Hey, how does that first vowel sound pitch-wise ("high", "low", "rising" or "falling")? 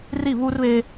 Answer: falling